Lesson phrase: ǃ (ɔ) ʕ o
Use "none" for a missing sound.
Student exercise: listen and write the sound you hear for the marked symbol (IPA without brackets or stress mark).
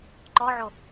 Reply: ɔ